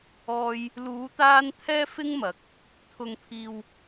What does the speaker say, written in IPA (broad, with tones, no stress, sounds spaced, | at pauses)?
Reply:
ɔː˧ j | l uː˨˧ t̪ aː˧ n t̪ʰ ɛː˥ f ɪ˥ ŋ m ɐ˨˥ k̚ | t̪ʰ ʊ˨ ŋ pʰ iː˨ w